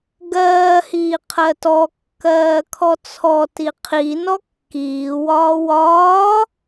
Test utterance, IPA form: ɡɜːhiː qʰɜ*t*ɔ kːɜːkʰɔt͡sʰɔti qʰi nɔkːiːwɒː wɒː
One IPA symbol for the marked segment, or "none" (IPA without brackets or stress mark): t